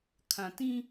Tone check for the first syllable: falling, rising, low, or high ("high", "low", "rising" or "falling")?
low